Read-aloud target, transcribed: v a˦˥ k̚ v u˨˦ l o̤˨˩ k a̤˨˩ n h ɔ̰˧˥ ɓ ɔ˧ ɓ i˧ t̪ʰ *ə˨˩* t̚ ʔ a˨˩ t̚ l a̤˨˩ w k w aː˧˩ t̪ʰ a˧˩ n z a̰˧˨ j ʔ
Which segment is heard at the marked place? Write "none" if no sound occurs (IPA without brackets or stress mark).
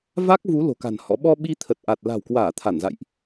ə˨˩